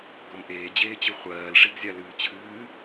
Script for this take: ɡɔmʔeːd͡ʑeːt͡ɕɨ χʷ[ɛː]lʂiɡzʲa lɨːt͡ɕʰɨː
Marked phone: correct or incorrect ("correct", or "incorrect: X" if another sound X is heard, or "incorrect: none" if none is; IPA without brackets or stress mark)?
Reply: incorrect: ɜː